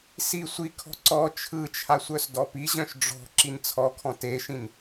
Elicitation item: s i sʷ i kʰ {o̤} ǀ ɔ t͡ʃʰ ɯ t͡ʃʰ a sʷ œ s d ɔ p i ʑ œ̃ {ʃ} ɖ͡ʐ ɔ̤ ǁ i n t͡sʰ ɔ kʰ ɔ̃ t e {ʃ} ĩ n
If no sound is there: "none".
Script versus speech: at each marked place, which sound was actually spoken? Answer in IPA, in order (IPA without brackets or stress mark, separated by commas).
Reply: ɔ̤, ʃ, ʃ